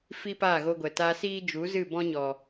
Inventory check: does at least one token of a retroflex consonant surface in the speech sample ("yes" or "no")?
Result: no